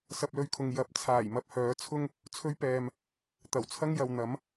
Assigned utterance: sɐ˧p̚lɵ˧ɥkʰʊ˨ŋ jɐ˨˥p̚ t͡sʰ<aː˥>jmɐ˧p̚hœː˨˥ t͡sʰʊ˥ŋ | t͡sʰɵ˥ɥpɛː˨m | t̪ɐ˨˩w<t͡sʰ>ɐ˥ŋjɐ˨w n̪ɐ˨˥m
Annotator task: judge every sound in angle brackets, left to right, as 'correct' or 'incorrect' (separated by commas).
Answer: incorrect, correct